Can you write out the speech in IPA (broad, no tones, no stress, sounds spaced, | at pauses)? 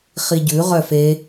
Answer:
χ i ɟ ʉ ʁ œ f e